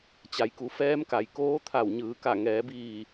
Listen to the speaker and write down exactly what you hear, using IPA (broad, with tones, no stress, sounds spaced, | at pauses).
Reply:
t͡ɕ a˩˧ j k u˩˧ f ɛː˧˥ m k a˩ j k oː˧˥ t̪ʰ a˧˩ w ɲ ɯː˩˧ k a˧˩ ŋ ɛː˩˧ b iː˧˩